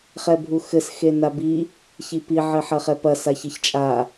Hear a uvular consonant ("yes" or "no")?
yes